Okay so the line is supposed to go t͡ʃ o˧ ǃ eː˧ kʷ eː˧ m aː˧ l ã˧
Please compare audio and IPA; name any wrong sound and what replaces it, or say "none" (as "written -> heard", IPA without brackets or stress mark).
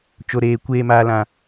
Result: ǃ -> ɾ